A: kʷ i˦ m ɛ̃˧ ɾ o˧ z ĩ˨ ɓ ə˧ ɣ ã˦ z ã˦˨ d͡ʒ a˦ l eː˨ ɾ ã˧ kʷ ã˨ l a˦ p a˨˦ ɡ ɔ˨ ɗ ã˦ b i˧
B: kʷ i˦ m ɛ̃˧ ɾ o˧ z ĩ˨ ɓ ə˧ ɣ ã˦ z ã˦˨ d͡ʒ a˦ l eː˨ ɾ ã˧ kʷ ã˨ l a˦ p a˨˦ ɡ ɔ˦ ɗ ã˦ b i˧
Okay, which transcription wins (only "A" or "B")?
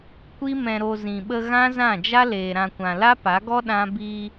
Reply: B